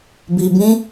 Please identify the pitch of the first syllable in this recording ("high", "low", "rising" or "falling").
low